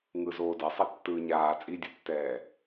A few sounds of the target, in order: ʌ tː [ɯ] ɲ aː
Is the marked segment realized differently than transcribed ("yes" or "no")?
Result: yes